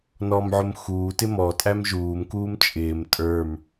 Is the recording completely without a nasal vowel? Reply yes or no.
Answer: yes